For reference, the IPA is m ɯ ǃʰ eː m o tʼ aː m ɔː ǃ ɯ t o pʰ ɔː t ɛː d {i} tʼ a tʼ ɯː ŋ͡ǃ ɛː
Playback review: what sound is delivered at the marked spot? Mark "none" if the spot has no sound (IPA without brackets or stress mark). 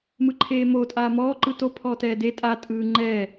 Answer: e